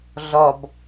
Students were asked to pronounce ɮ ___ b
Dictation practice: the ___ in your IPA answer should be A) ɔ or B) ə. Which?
A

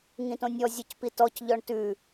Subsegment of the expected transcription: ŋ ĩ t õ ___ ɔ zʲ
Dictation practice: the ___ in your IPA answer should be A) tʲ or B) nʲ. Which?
B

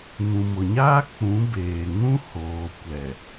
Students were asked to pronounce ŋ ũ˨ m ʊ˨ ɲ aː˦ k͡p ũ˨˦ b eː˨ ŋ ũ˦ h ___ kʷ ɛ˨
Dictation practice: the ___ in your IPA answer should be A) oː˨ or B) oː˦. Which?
A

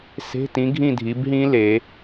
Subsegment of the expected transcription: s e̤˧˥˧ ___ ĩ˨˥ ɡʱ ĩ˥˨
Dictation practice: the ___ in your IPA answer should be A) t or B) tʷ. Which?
A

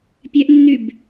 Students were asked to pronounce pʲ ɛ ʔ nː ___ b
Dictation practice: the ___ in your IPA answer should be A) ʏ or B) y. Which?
B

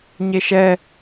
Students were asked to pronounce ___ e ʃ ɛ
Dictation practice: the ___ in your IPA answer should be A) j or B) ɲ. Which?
B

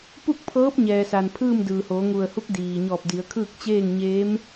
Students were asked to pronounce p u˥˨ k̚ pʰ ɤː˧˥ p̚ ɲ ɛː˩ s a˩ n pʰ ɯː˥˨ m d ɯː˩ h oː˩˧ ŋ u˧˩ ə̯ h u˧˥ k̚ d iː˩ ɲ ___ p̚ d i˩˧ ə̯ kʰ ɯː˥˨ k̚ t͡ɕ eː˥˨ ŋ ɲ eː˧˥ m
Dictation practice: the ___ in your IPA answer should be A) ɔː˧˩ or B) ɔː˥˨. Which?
A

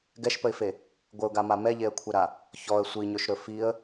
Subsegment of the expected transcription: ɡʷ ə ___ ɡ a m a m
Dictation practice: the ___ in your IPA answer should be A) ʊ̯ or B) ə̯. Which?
A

